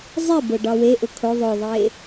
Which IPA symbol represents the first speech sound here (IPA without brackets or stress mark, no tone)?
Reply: zˤ